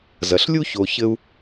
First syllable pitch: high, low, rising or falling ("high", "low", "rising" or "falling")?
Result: low